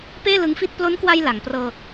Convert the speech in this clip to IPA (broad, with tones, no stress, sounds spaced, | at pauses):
p eː˥˩ l ɯ˦˥ ŋ f i˥˩ t̚ p l o˦˥ n k w a˧ j l a˩˦ ŋ p r ɤː˧